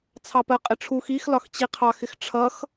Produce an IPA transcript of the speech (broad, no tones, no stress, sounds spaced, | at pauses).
t͡sʰ ɑ p ɜ qʼ ɪ ʈ͡ʂʰ u x i x l ɒ x t͡ɕ i qʰ ɑ x ɪ x ʈ͡ʂʰ ʌ x